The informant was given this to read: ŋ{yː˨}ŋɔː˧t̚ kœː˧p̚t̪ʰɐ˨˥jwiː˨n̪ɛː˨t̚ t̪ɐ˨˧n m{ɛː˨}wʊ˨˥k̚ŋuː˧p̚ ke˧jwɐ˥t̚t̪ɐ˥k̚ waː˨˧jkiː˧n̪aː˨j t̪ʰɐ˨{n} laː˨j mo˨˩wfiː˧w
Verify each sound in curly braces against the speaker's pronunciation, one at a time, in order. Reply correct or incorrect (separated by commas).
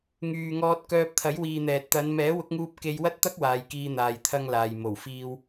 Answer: correct, incorrect, incorrect